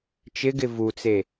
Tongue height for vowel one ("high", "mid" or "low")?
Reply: high